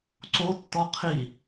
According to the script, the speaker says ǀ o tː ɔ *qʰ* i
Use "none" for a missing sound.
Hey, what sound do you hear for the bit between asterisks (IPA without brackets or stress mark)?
qʰ